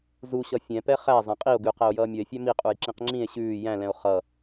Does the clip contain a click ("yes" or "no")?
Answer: yes